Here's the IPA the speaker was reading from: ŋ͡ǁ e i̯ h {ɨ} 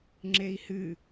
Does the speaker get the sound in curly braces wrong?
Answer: no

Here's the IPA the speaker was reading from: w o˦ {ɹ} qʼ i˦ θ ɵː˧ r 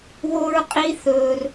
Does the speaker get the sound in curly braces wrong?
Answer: no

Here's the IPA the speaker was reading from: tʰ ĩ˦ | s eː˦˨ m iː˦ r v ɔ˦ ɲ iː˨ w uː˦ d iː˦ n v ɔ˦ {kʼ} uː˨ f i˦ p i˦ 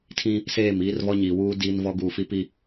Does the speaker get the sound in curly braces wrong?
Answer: yes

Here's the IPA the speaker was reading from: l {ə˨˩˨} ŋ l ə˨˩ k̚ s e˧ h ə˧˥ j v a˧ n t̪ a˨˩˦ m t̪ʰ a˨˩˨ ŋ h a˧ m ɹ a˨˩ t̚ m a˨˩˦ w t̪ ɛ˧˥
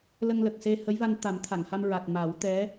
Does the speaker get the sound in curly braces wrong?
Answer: yes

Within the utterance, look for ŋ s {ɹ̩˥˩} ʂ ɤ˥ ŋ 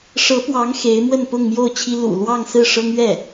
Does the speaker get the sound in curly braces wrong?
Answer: no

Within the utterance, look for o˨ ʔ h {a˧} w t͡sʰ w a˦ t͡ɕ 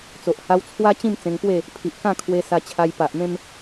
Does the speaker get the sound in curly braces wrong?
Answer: no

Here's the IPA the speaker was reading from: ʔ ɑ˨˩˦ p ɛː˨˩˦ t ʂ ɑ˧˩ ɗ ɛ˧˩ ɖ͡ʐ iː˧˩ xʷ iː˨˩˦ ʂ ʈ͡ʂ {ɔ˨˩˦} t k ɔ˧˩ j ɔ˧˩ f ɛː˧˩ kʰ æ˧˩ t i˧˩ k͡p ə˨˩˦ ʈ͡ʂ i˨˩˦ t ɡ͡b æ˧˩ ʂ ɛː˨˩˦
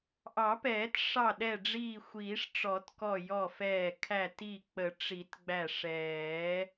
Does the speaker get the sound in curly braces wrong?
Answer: no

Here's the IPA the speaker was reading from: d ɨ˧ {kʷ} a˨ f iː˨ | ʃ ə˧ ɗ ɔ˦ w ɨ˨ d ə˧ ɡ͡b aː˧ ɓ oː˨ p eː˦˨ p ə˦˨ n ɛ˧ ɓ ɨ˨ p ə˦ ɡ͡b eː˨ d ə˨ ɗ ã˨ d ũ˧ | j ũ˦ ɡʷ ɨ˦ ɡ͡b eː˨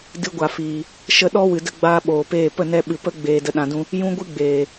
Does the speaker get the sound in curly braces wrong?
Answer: yes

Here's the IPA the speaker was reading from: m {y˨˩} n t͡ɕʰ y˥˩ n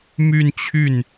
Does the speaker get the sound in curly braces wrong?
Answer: yes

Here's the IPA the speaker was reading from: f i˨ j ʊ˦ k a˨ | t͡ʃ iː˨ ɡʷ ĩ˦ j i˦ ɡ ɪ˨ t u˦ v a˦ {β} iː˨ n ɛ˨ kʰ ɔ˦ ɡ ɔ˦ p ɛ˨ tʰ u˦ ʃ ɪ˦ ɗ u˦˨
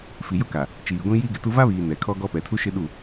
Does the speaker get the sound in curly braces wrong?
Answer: no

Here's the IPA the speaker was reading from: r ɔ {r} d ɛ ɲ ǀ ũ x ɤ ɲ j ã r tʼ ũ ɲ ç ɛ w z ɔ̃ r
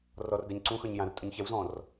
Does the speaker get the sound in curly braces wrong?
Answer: no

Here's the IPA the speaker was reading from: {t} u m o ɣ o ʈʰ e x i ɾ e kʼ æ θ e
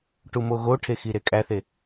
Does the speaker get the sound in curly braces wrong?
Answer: yes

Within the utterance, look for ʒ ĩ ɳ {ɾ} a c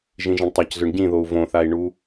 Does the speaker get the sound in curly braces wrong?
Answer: yes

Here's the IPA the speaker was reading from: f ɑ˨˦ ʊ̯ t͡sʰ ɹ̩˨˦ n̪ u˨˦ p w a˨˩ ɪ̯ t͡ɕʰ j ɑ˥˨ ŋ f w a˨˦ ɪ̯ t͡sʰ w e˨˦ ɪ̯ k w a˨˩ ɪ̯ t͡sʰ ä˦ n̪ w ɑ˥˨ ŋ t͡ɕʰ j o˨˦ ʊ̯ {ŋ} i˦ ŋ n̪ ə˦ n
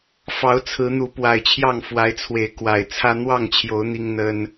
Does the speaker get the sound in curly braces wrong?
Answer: yes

